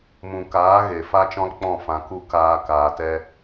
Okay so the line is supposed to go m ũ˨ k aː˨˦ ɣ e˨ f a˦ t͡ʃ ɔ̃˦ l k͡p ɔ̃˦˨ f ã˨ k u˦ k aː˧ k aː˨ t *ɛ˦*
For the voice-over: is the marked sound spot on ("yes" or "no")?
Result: no